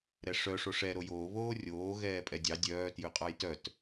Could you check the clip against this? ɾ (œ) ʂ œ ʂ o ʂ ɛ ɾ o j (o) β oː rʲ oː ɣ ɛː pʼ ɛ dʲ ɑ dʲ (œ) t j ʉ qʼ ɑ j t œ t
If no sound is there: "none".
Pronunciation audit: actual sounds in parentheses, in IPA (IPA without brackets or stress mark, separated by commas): ɛ, oː, œː